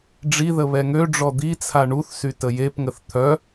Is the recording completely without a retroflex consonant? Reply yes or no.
no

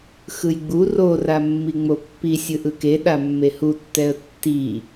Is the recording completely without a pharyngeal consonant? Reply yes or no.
yes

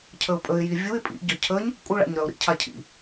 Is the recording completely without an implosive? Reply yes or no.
yes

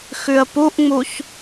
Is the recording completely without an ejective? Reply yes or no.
yes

